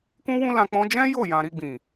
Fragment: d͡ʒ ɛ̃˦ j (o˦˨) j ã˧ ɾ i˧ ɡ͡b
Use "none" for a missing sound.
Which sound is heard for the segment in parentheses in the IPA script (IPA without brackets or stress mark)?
o˦˨